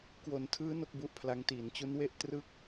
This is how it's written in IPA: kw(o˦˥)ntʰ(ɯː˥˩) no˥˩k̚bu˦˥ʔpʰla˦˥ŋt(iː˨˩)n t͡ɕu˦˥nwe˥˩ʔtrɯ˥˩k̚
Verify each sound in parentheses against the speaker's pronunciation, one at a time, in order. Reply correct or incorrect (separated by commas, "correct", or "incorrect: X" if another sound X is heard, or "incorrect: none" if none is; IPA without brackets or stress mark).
incorrect: o˩˦, incorrect: ɯː˦˥, correct